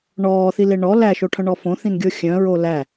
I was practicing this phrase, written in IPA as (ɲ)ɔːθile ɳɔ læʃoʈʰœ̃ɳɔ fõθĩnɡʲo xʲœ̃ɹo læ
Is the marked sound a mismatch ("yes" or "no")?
yes